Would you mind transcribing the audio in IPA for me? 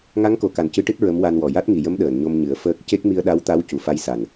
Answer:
ŋ a˧˥ ŋ k o˨˩˨ k a˨˩ n c ɨ˧˥ ʈ ɨ˦˥ t̚ ɹ ə˧˥ m w a˧ n w ɔ˨˩ j a˦˥ t̚ ŋ i˨˩ j ə˧˥ m ɗ əː˨˩˨ n ɲ o˧ m ɲ ɨ˨˩˦ ə̯ f əː˦˥ k̚ c e˦˥ k̚ m i˧ ə̯ ɗ a˧˥ w t̪ a˧˥ w c u˨˩ f a˧ j s a˨˩ n

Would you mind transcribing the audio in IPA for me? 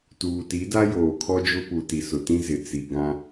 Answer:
t uː˨ t i˨˦ d a˦ j oː˨ kʰ ɔ˦ d͡ʒ ʊ˦ p u˨ t i˨ s ʊ˨ t ĩ˦ z ɪ˨ t͡s i˨ ɡ ã˦

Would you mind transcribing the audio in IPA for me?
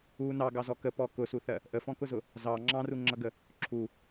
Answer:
u n ɑ ɡ ɑ z ɔ k ə p ɔ k ʊ s u θ ɜ | ʔ ə f ɔ̃ k ʊ z ʊ | z ɑ ŋ͡ǁ ɑ̃ r u ŋ͡ǁ ʌ ɡ ə | ǁʰ u

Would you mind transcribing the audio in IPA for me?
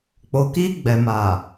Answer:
k͡p o˨ k i˧ ɡ͡b ɛ˨ m a˨

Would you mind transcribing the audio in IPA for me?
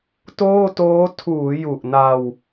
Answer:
t oː˥˩ t oː˦˥ tʰ uː˩˦ j u˨˩ ʔ n a˧ w

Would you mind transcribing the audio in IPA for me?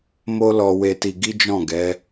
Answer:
m o˦ l ɔ˧ w e˧ t i˧ ɡ i˦ d͡ʒ ɔ̃˦˨ ɡ ɛ˨˦

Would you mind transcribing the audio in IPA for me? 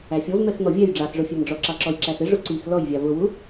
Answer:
æ fʲ ɔ v m ɛ x n̪ ɔ vʲ ɛ j ɖ͡ʐ ɑ s ʐ ʊ fʲ ɛ m ɖ͡ʐ ɔ ǁ ɑ ǁ ɔ j ǁ æ s ɪ ʐ ʊ ǀ i x l ɔ j vʲ ɑ v ʊ w u

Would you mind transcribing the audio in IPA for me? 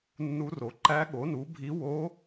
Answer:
nː u˧˥ r o˩˥ ǃ æ˧˥ ɠ o˩˥ n u˩˥ bʱ i˧˥ w o˧˥

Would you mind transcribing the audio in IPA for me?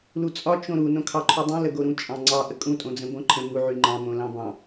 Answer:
l u t͡sʼ ɒ t͡ʃ õ ɾ u n õ kʰ ɑ ǃʰ u dˤ ũ l ə ɡ o ɾ ũ t͡ʃʼ ɑ̃ ŋ͡ǀ ɑ ʔ ə kʼ ũ tʼ õ d͡z ə̃ b õ ǃʰ ə̃ m u ʕ y ŋ͡ǃ ɑ̃ m õ l ɑ̃ b ɑ̃

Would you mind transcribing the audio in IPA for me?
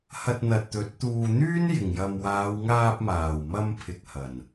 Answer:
h ɐ˧ t̚ n̪ ɐ˨ t̚ t̪ ɵ˨˥ t̚ t̪ uː˧ n̪ yː˥ n j ɪ˨˩ ŋ j ɐ˨ m w aː˨˧ w ŋ aː˧ p̚ m aː˨˩ w m ɐ˧ m pʰ ɪ˨ k̚ h ɐ˨˩ n

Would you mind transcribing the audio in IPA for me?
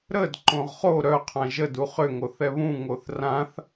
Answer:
ɾ ə d ǃ õ ʁ χ o ɾ œ qʰ ã ʒ ə d u χ ʏ ŋ o θ ɛ β ũ ŋ o θ r ã θ

